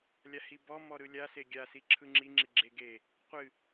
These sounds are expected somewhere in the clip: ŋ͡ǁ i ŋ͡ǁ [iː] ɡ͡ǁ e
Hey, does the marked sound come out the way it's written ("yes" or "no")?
no